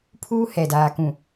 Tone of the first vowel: high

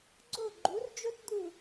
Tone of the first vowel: falling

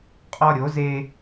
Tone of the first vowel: high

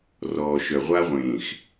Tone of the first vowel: low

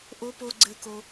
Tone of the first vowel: rising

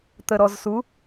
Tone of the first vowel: low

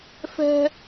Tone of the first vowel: high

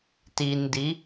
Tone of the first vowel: low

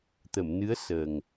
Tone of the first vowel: low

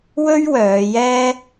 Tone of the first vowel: high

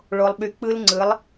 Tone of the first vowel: low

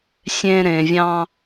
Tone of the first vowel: low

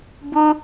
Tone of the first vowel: high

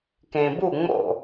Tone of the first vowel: low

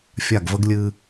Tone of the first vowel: falling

